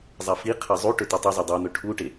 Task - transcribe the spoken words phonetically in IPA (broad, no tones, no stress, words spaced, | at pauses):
zˤafiqʰa zˤuʈɵ tetˤʉzˤo dˤun̪ɵ ʈʰuʈe